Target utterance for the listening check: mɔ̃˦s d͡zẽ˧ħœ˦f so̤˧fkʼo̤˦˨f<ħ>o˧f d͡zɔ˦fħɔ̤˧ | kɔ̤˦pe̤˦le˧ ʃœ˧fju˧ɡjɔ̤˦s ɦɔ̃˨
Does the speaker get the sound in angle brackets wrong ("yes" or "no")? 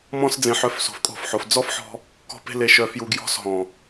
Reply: no